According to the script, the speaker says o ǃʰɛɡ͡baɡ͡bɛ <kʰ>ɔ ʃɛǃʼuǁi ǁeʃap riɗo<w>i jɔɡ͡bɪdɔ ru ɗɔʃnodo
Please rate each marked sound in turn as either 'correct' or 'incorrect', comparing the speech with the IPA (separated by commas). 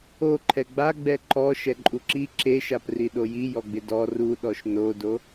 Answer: incorrect, incorrect